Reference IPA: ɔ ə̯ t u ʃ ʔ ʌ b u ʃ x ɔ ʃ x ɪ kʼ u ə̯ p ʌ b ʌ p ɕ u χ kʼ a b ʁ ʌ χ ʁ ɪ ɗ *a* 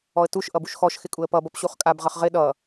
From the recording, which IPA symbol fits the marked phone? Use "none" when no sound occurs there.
ʌ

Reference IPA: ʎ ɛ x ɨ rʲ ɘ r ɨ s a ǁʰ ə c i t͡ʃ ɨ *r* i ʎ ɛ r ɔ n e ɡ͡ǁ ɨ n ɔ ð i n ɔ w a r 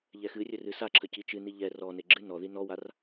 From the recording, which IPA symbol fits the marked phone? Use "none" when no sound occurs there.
n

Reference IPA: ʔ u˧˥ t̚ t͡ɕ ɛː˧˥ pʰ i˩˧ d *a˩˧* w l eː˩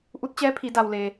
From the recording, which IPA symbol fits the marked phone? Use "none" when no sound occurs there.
a˩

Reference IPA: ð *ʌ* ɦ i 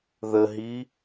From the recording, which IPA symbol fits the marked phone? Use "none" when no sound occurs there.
ə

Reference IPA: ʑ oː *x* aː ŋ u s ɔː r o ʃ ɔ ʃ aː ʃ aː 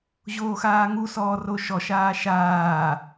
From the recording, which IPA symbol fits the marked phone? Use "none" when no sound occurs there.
x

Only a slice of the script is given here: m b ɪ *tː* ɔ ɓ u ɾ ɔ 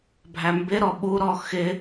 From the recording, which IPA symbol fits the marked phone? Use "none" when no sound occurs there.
ɾ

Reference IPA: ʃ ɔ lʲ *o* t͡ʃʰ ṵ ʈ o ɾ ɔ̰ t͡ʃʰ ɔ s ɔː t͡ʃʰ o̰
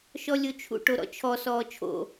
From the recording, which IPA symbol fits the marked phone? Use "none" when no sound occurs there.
o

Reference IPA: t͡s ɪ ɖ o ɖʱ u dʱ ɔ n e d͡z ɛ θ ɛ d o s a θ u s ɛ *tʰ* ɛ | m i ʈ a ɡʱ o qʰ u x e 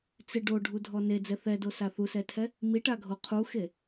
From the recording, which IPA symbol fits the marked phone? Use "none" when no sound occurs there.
tʰ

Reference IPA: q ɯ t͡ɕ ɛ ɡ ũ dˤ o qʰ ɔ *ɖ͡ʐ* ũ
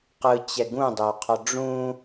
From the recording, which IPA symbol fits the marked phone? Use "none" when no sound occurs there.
ɖ͡ʐ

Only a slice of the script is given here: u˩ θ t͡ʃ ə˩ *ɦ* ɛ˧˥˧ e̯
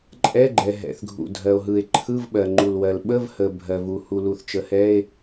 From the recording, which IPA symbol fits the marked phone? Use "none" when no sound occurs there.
h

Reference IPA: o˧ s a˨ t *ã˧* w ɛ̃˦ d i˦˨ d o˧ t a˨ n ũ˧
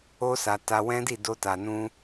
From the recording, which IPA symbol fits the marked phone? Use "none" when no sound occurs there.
a˧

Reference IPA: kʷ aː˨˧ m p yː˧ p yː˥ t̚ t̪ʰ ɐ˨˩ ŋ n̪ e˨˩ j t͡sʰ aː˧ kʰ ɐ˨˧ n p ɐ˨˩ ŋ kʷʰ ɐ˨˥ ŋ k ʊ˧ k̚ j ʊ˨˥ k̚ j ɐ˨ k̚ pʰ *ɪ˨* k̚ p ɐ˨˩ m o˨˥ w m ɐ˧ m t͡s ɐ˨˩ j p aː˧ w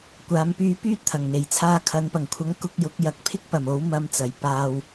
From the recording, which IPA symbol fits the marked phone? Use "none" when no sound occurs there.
ɪ˥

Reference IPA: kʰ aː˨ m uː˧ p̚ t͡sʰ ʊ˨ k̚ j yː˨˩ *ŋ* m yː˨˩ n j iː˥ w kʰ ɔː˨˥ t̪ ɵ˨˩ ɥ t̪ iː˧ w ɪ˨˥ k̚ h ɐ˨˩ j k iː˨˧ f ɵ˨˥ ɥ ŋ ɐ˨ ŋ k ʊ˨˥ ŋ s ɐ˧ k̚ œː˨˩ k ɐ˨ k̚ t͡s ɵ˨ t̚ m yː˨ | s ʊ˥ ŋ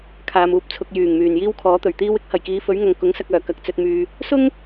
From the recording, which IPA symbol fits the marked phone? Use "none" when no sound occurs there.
ŋ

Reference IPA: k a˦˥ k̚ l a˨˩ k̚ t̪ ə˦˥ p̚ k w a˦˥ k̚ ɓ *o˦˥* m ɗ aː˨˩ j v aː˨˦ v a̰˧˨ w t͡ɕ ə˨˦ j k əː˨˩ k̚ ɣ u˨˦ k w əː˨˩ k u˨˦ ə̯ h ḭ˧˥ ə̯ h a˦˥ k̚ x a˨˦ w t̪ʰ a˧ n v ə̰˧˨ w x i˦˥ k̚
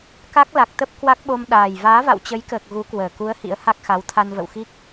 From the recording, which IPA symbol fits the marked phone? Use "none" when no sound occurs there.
o˧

